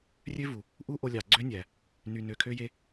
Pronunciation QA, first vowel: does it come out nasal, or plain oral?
oral